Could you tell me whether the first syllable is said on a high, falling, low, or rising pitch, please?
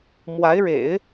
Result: rising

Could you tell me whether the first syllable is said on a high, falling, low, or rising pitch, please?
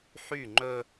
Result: falling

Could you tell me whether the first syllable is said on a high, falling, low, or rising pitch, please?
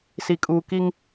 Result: low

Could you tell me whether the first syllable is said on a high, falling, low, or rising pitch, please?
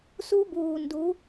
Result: high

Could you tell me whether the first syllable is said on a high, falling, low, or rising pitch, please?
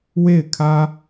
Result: falling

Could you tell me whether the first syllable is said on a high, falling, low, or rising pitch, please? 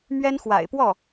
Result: high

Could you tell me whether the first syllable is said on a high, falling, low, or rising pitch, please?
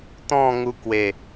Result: falling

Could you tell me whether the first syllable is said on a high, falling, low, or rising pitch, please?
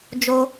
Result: high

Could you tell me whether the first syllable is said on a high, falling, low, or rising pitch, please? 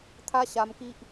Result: high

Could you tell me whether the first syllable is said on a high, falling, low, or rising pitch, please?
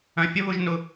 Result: low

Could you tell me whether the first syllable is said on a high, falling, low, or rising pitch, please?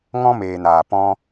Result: high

